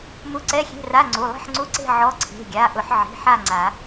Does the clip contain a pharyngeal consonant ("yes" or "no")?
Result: yes